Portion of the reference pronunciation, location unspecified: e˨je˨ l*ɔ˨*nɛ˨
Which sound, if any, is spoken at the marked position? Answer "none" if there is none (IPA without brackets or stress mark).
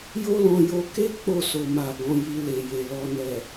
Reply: ɔ˨